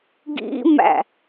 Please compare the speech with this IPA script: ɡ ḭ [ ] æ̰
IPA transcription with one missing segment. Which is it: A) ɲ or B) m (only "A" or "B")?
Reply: B